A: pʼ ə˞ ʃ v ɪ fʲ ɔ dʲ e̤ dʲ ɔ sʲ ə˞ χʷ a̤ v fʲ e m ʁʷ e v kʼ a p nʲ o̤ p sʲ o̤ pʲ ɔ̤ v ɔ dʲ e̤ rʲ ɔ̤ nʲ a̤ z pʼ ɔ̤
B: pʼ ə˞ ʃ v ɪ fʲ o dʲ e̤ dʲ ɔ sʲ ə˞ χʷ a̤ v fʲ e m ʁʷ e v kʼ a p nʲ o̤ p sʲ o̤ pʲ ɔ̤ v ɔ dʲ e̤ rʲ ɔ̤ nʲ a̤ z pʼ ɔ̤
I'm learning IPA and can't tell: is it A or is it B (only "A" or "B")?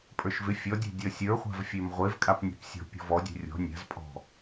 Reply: A